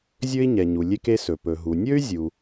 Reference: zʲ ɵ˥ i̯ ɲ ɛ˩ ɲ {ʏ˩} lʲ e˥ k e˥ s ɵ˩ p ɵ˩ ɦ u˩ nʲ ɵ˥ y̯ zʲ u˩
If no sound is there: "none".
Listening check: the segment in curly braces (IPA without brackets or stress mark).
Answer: u˩